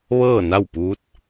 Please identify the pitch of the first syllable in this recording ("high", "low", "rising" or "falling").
falling